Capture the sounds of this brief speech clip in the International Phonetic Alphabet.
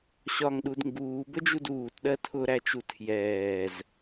ɕɒŋɗud ŋɡuːbəd͡ʒud uːtɗɜ tʰʊɾæt͡ʃu tʰjɛːz

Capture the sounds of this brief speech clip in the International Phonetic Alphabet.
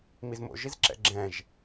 mizmo̰ ʒizǁɛ̰ɡ͡ǁɛ̃ʒ

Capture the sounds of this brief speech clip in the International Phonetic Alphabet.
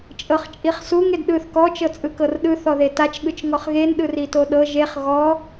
t͡ʃʼɤχt͡ʃʼiχsuŋ edɗɯθ kɔ t͡ʃɤt͡sʼɯkɤrɗɯ θɔðetat͡ʃ ɠɯt͡ʃŋɔχɣen ɗɯritoɗɤ ʒeχ ɣɔ

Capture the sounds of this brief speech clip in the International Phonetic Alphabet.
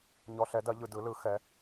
ɲɔ˧ɬɛ˨˥dɐ˨˥ ʎɯ˧dɯ˨˥lɯ˨˥xɛ˨˥

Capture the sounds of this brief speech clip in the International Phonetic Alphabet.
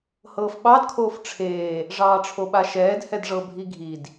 hɤːfɓɑd kʰoːfʈ͡ʂʰeː | ʐɑːʈ͡ʂʰoɓaʃɛːd hɛdʐɤbʱi ɡʱid

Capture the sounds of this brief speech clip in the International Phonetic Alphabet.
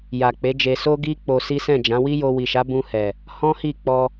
ja˨k͡pe˨˦d͡ʒe˧ so˦ɡi˦ k͡po˧si˦ sɛ̃˦˨d͡ʒã˨˦ wi˦jo˧wi˨ʃa˨˦ bũ˧hɛ˨ | hɔ̃˦hi˦˨k͡pɔ˧

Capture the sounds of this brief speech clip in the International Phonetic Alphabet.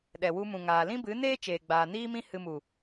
ɗɛ˨wu˧mũ˨ŋaː˨ lĩ˦bɨ˨˦neː˦t͡ʃeː˨ ɡ͡baː˨niː˦mĩ˦ hɨ˧mu˨

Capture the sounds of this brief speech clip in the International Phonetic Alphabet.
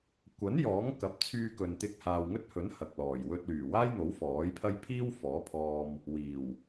kʷɐ˨˥n jɔː˨˥ŋ kɐ˨˥p̚t͡sʰyː˧kɵ˨n t̪ɪ˧k̚haː˨wŋɵ˥t̚hɵ˨˥n hɐ˨k̚lɔː˨˩j wɵ˧t̚ lyː˨˩waː˥j n̪o˨˥wfɔː˨˥jpʰɐ˥j pʰiː˥w fɔː˨˥pʰɔː˧m | wiː˨˩w

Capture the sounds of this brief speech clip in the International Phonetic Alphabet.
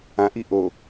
ãʔi ʔo

